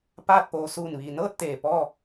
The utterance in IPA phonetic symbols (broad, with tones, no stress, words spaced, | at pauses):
paː˥˨t̚po˧ suː˧˩nʋiː˩nɤː˥˨t̚ t̪eː˧˩pɔː˥˨